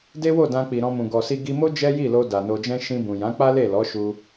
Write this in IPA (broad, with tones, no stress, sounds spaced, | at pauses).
d e˦ w o˦˨ d ã˧ k͡p i˨ ɾ ɔ̃˧ m ũ˨ ɡ ɔ˨ s i˧ ɡ i˧ m o˦ d͡ʒ ɛ˦ j i˦˨ l o˧ d a˨ n o˧ d͡ʒ ɛ̃˦ ʃ ĩ˧ b ũ˨ j ã˨˦ k͡p a˦ l e˦˨ l ɔ˨˦ ʃ u˦